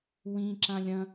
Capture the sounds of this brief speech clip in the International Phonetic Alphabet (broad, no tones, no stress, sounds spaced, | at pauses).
w ĩ ǁ ã lʲ ɐ̃